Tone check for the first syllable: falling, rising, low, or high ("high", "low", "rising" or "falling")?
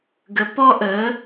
rising